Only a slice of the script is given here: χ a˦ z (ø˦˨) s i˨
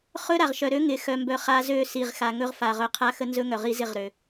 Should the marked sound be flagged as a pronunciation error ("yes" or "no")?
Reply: no